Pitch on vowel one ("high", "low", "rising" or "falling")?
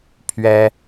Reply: high